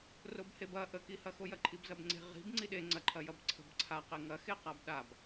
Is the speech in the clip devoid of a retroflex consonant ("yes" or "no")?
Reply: yes